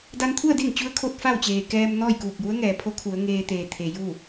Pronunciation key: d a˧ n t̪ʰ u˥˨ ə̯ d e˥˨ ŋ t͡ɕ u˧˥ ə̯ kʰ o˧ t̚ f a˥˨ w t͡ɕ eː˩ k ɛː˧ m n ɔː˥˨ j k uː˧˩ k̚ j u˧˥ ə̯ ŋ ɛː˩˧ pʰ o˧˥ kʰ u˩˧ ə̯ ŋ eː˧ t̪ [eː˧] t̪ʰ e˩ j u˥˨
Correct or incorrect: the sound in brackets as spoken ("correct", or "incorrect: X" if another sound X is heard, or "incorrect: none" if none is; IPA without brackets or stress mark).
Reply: incorrect: eː˩